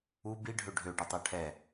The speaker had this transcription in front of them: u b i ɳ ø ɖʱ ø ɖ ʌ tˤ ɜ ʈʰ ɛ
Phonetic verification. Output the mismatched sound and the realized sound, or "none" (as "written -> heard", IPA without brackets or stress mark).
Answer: ɳ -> ɖʱ